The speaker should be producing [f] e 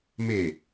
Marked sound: incorrect: m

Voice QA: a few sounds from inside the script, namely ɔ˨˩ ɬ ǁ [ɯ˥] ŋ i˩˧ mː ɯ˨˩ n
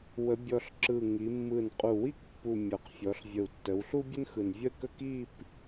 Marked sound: incorrect: ɯ˨˩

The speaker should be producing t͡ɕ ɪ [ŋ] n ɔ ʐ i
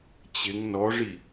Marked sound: correct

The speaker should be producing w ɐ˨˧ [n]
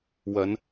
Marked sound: correct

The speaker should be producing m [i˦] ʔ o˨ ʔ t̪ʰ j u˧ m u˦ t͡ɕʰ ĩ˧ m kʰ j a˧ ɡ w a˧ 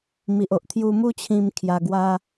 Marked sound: incorrect: i˨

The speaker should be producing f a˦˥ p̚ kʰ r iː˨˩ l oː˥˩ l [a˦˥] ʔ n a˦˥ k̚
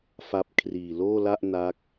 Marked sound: incorrect: a˥˩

